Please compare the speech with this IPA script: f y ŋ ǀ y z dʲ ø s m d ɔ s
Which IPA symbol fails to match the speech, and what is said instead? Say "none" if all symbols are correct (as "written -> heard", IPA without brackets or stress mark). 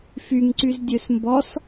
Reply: d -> b